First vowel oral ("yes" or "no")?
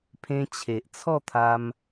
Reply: no